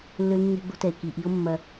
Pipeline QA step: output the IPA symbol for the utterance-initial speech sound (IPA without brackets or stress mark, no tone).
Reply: lː